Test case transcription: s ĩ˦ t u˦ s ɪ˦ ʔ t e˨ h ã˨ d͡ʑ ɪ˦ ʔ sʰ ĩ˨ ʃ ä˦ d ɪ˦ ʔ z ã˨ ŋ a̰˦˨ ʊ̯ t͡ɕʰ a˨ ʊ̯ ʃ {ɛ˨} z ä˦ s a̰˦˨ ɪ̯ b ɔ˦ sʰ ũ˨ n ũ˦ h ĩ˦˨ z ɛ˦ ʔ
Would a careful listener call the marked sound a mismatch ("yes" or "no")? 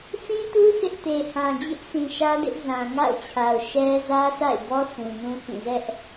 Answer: yes